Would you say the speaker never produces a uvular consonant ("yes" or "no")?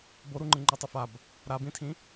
yes